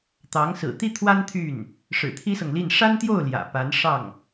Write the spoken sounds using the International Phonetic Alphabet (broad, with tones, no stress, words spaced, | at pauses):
t̪ɑ˧˥ŋ sɹ̩˨˩t̪i˥t̪ʰwa˥n t̪ʰy˥˩n | ʂɻ̩˨˩t̪ʰi˥sɤ˨ŋli˥˩n ʂa˥nt̪jo˥˩ʊ̯ ljä̰˨˩ pa˧˥n ʂɑ˥˩ŋ